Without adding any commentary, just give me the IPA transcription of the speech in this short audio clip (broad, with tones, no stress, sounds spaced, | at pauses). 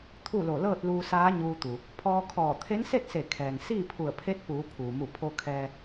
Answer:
t̪ʰ u˥˨ l o˧˩ l ɤː˥˨ t̚ l uː˧ s aː˧˥ ɲ uː˧ t̪ u˩ | pʰ ɔː˧ kʰ ɔː˧˩ t̪ʰ e˧˥ n s e˥˨ t̚ s e˧˩ kʰ ɛː˩ ŋ s iː˥˨ pʰ u˧˩ ə̯ pʰ e˧˥ t̚ p uː˩˧ pʰ uː˩ m u˧˩ pʰ o˧ kʰ ɛː˧